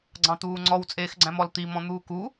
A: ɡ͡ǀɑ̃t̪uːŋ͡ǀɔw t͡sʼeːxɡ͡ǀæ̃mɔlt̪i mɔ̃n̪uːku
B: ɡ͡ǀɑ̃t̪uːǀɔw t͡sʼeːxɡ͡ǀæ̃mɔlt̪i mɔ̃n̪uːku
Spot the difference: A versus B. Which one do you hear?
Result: A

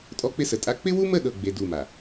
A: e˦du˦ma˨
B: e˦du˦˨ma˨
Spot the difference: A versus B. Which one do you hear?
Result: B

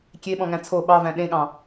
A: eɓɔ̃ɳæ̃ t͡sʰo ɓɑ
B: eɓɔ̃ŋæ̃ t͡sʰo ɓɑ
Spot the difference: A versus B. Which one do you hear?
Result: B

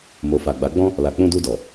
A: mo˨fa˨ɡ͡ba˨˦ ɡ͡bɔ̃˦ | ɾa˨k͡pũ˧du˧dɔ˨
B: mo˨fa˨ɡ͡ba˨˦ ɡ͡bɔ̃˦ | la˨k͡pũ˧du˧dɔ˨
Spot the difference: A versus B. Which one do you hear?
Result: B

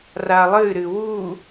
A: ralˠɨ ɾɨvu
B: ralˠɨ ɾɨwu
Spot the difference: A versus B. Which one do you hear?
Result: B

